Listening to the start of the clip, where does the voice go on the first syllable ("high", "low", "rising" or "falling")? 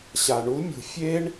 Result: low